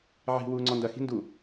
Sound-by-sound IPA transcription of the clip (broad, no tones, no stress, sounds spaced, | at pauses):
ʕ i̤ w uː ŋ͡ǀ ɔ n d ɐ x i̤ n d u